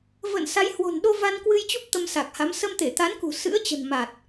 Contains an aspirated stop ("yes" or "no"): no